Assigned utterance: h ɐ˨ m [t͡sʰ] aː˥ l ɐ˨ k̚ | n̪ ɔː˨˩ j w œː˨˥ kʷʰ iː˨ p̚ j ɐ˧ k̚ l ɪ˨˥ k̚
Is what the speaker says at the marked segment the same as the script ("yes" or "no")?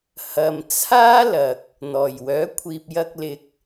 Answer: yes